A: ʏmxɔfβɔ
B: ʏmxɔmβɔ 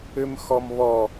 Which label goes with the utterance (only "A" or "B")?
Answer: B